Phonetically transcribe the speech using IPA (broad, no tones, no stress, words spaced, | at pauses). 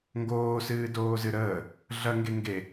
ŋɡoːsɨːdoːzɨ ɾəː | ɮɐŋɡe ŋɡe